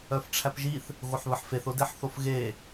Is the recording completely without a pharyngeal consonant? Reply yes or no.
no